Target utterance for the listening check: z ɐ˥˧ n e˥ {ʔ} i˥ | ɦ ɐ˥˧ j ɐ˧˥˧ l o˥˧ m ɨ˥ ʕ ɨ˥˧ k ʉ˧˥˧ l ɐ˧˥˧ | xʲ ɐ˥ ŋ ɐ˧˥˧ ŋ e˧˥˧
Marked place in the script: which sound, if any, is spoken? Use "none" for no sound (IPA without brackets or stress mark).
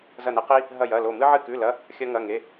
q